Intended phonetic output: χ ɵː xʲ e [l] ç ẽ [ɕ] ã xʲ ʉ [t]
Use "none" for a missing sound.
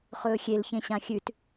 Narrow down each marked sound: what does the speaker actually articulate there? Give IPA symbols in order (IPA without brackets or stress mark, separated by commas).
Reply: l, ɕ, t